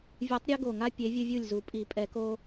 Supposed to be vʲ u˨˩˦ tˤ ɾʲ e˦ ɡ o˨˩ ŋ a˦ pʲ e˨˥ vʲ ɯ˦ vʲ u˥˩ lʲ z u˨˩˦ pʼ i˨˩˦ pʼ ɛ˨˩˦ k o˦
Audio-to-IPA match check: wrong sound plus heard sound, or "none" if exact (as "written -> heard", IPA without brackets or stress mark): none